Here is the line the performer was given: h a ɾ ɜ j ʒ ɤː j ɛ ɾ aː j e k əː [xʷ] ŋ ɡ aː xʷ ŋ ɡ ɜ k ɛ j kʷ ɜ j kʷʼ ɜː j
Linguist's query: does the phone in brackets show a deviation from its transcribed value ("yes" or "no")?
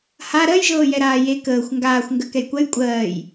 no